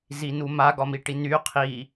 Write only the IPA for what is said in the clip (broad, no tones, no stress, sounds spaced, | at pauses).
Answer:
z i n u m a ɡ ɒ m i ʈ i n y qʰ i